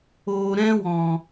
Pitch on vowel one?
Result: low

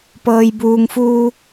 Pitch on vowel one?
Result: low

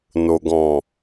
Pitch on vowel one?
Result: low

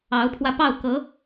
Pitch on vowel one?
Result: rising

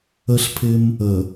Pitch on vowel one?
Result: high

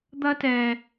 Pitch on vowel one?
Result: high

